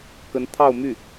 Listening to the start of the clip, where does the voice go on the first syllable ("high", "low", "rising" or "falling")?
rising